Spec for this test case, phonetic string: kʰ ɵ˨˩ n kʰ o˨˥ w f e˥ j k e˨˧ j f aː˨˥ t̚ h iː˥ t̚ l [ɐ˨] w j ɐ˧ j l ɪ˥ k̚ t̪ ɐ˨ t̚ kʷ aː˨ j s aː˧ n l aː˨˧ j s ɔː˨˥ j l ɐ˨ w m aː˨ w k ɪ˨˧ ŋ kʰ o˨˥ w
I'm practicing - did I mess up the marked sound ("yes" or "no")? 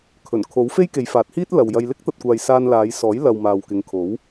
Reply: no